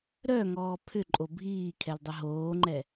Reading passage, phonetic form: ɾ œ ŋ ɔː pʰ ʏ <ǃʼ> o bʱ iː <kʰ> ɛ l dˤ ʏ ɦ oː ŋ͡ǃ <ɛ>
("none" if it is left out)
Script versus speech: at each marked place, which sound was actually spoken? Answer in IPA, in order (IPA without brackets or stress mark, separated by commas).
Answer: ǃʼ, kʰ, ɛ